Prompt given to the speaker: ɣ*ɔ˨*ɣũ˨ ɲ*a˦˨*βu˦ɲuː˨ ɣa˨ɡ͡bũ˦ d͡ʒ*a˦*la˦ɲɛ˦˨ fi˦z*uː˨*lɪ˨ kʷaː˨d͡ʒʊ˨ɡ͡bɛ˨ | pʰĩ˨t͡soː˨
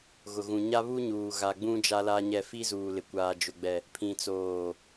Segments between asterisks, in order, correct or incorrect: incorrect: ʊ˨, incorrect: a˦, correct, correct

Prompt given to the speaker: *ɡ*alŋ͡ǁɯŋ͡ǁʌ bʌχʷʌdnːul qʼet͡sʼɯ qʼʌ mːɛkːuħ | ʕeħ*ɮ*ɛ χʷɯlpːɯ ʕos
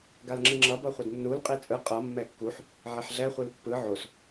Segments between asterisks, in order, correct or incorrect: correct, correct

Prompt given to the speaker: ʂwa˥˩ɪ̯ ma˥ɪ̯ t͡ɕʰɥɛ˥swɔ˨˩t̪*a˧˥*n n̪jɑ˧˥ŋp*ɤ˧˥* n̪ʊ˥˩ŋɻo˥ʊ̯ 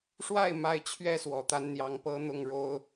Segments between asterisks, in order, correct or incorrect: correct, incorrect: ɤ˥

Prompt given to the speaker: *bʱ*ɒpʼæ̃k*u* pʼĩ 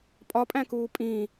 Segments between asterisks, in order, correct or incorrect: incorrect: pʼ, incorrect: uː

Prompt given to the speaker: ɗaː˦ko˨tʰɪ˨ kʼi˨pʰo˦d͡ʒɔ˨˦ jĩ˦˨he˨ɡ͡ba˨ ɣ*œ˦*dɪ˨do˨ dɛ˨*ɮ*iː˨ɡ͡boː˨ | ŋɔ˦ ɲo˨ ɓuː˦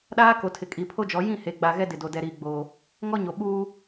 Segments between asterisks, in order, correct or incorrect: incorrect: ɛ˦, incorrect: ɾ

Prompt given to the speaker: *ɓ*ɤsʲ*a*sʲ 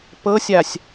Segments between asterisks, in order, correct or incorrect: incorrect: p, correct

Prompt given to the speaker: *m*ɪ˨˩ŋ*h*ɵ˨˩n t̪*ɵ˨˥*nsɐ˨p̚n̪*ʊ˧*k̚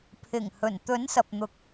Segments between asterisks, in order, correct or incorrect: incorrect: pʰ, correct, correct, incorrect: ʊ˨˥

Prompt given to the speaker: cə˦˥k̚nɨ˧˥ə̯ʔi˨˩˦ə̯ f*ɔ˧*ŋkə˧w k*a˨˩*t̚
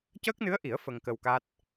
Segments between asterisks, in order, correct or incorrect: incorrect: ə˧, incorrect: a˦˥

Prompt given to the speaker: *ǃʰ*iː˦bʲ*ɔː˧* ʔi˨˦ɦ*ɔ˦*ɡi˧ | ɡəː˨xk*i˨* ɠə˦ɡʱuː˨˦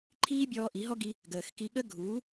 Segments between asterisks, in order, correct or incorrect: correct, correct, correct, incorrect: i˧

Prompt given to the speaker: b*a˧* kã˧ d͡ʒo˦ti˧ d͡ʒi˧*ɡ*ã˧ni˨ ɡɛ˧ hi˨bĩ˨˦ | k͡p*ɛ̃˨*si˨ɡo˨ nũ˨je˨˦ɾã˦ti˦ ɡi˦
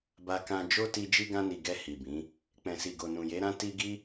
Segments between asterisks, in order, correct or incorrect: correct, correct, correct

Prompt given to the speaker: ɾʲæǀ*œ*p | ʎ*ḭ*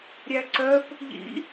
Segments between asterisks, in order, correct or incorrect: correct, correct

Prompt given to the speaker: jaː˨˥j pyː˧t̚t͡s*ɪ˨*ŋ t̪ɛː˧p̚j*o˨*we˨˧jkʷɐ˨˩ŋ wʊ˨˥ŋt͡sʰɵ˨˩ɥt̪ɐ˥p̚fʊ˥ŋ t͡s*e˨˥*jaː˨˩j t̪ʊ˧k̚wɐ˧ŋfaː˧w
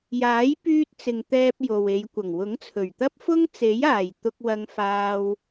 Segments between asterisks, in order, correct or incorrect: correct, correct, correct

